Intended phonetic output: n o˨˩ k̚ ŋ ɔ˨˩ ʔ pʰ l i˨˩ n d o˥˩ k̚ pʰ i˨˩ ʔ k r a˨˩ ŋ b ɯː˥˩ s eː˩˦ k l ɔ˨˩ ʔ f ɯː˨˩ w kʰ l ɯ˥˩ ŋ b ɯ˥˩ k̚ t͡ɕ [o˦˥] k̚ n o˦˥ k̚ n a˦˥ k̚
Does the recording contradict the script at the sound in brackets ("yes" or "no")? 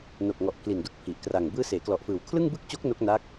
no